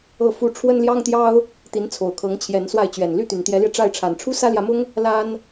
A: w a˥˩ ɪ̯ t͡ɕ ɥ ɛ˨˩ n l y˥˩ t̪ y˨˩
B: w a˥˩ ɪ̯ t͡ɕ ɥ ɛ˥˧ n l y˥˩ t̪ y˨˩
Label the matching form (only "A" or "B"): A